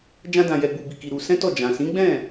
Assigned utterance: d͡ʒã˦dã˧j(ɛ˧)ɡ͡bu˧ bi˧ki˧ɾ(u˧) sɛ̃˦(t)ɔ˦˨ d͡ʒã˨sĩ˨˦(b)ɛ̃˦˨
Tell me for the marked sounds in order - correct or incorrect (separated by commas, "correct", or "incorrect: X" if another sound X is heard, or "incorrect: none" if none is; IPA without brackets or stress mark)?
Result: correct, correct, correct, incorrect: ɡ͡b